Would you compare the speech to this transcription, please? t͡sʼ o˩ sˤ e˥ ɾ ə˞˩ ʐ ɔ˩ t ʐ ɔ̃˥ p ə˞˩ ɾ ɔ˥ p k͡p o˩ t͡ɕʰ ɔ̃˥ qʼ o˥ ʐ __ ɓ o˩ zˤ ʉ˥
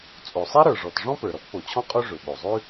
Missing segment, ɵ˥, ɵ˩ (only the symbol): ɵ˩